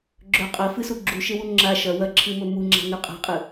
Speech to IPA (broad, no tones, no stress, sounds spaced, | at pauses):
ɡ͡ǁ ɵ qʼ ɐ f ɨ s u ɡ͡ǁ u ʃ e w u ŋ͡ǁ a ʃ ɐ w ɐ ǁʰ ɨ m ɵ m u ŋ͡ǁ a̤ n ʉ qʼ a̤ qʼ ɨ